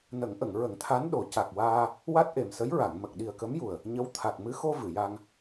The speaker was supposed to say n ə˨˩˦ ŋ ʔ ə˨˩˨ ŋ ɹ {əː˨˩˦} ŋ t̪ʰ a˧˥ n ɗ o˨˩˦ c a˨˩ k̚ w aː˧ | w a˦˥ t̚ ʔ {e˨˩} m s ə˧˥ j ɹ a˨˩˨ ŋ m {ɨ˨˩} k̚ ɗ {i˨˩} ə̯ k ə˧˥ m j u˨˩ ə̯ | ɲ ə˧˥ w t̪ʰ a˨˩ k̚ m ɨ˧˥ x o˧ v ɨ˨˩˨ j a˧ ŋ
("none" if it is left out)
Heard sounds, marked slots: ə˨˩˦, e˨˩, ə˨˩, i˨˩

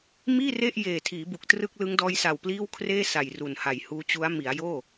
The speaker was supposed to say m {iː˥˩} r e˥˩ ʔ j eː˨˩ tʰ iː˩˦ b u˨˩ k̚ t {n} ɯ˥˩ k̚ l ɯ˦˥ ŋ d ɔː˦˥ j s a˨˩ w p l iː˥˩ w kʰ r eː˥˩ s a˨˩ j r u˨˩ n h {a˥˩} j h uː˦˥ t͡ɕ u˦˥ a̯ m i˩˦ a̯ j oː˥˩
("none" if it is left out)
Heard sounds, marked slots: iː˥˩, r, a˨˩

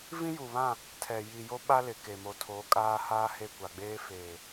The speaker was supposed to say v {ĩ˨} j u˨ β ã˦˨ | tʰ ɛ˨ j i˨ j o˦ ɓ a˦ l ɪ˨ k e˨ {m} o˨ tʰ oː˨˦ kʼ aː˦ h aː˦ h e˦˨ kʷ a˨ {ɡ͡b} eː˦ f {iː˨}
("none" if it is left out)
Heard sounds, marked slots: ĩ˦, m, ɡ͡b, eː˨

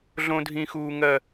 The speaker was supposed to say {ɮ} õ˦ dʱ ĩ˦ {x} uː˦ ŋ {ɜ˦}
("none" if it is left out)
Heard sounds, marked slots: ɮ, x, ɜ˦

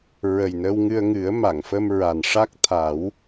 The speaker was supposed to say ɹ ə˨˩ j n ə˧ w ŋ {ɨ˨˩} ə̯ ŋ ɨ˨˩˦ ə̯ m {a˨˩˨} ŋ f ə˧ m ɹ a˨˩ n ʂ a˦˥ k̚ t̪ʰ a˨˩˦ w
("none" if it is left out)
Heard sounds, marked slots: ɨ˧, a˨˩˨

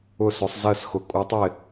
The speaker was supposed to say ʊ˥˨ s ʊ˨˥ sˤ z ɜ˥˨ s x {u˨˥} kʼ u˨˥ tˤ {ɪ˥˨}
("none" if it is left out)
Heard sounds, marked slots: ʊ˨˥, ɪ˥˨

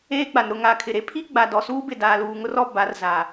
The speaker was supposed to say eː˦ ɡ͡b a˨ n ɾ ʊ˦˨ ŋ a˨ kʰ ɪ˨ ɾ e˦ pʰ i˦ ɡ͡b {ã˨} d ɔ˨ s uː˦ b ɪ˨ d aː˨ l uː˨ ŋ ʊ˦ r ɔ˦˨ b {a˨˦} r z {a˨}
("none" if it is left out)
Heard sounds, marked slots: a˨, a˨˦, a˨

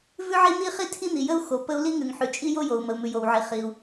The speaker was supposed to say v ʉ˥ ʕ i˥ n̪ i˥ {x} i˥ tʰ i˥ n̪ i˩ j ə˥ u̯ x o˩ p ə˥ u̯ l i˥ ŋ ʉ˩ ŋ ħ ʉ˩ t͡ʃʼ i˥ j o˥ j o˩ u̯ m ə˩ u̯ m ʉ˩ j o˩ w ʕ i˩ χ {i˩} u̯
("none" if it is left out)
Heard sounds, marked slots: χ, i˩

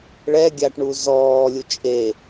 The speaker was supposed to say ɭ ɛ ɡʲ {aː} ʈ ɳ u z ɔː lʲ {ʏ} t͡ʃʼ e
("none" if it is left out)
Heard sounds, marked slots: a, u

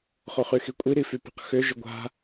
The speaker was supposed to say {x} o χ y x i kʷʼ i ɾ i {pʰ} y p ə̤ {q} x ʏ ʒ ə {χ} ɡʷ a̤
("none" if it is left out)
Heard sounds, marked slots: χ, f, q, none

